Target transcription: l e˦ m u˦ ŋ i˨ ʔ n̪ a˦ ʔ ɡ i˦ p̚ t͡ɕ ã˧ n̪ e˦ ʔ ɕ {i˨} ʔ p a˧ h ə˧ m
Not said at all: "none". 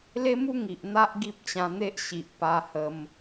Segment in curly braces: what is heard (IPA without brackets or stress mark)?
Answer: i˨